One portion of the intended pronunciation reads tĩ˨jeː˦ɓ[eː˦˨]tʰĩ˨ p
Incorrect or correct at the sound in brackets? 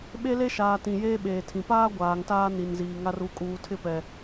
incorrect: eː˨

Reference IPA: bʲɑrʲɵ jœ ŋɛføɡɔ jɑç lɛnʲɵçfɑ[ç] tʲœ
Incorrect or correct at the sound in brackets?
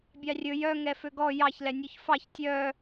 correct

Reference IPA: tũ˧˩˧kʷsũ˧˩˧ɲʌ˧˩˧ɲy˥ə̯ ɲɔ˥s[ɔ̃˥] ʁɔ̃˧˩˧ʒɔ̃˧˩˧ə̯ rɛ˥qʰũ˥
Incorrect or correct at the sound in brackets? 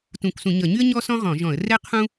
correct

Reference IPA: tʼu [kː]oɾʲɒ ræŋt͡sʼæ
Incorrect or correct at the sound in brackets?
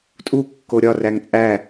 correct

